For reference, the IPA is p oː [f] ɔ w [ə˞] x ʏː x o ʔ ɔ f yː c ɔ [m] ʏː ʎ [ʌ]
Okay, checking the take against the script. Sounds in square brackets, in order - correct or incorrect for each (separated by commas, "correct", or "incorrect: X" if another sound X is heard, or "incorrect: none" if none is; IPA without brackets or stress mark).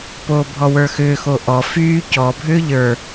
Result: incorrect: bʱ, correct, incorrect: bʱ, incorrect: ə˞